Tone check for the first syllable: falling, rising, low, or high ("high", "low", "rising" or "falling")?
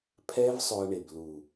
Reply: high